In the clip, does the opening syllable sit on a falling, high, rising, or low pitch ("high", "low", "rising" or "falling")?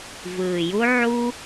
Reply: low